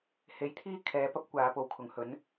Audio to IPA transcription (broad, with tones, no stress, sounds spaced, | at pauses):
h e˨˥ j t̪ʰ iː˥ kʰ ɛː˨˧ p ɐ˥ p̚ kʷ aː˨˧ p o˨˧ w kʰ ʊ˨ ŋ h ɵ˨˥ n